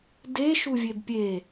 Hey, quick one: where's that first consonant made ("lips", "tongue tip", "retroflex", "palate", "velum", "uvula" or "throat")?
tongue tip